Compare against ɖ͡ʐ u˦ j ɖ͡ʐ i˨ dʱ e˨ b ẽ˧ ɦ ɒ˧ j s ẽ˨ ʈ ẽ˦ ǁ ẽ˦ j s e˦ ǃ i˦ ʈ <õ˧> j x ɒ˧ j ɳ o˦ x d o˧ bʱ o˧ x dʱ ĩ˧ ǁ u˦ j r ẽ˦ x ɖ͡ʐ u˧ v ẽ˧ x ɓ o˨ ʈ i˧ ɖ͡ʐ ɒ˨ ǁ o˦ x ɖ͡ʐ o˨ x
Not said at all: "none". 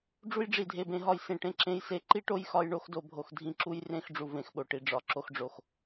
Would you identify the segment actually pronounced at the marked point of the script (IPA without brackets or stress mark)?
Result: o˧